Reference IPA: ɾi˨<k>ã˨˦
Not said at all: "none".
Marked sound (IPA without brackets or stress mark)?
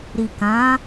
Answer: k